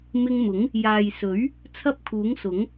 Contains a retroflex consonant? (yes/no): no